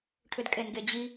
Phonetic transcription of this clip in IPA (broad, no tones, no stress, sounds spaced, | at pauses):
ʈʰ ʏ d kʼ e n ɡ e d͡ʑ i